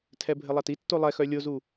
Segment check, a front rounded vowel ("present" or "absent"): present